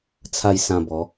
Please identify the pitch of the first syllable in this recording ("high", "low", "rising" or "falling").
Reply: low